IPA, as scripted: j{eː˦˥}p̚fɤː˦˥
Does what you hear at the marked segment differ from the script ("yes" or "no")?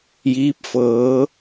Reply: yes